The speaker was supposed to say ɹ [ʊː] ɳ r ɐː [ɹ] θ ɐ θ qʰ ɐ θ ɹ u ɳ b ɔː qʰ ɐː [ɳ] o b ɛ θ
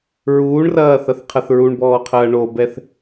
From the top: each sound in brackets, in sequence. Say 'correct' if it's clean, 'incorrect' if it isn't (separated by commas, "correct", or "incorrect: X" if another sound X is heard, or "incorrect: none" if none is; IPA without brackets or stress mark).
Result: incorrect: uː, incorrect: none, correct